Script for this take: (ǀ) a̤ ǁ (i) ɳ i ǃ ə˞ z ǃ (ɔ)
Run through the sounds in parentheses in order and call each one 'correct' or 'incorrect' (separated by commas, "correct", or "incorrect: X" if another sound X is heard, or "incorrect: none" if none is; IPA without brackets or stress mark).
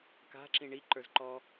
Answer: incorrect: k, incorrect: ĩ, correct